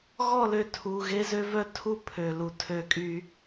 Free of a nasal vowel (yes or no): yes